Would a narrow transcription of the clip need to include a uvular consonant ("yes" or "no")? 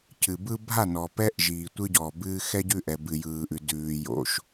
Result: no